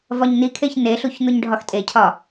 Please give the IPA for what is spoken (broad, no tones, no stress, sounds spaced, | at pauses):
v ɒ ɲ n i kʰ e ç n e ɬ u ç n̪ u ɲ ɖʱ ɒ x tʼ e cʰ ɒ